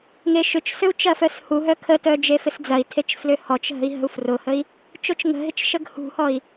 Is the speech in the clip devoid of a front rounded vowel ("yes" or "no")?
no